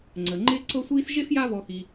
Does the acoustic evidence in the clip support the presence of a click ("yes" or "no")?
yes